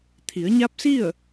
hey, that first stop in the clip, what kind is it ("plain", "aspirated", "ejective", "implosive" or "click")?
aspirated